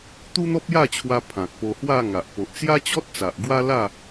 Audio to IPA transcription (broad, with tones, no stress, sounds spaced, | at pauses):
t̪ u˦ n̪ ɔ˦ p̚ j a˥˧ t͡ɕʰ w a˧ pʰ ã˨ k̚ p o˧ h w a˥˧ ŋ a˨ ʔ p o˨ ʔ t͡s j a˦ t͡ɕ ɔ˦ t̚ t͡s a˨ ʔ ɡ w a˦ l a˥˧